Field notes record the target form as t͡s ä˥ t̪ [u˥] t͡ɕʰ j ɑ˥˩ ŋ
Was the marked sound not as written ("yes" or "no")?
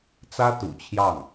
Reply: yes